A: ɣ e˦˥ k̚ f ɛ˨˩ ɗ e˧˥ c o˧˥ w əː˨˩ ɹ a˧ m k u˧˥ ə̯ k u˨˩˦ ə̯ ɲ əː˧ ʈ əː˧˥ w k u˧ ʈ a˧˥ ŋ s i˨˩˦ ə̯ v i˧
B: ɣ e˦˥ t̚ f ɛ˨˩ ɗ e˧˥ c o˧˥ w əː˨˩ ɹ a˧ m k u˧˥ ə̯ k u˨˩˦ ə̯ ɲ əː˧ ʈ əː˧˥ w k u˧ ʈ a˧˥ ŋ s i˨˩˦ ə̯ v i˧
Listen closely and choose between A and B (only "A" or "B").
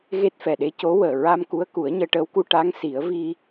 B